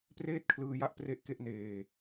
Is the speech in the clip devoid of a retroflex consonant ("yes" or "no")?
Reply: yes